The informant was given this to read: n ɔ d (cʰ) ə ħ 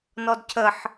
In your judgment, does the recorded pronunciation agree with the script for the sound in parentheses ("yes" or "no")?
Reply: yes